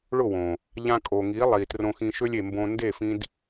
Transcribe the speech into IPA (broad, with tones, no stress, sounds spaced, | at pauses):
ɭ ʊ˦˨ w õ˨ | ʎ ã˧ kʼ o˨ ŋ i˨˦ lˠ i˨ t r õ˧ x ĩ˧ ʃ ø˧ lʲ e˨ m b õ˧ n d e˦˨ f ĩ˧ d